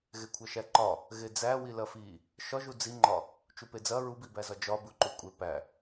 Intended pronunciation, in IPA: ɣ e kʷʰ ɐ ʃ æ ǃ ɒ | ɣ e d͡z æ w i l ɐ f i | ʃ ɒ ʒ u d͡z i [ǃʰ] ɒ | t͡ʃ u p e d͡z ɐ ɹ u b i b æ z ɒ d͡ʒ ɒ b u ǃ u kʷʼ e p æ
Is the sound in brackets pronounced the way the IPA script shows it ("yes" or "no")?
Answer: no